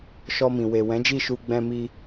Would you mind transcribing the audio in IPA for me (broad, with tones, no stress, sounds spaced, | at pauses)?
ʃ ɔ˧ m ĩ˨ w e˨ w ɛ̃˨˦ d͡ʒ i˦˨ ʃ u˧ ɡ͡b ɛ̃˧ m i˧